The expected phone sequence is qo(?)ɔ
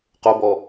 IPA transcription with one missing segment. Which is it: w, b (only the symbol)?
b